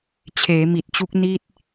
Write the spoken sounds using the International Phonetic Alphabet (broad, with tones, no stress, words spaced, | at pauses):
t͡ɕʰeː˩˦mi˨˩t̚t͡ɕu˦˥k̚ ni˥˩t̚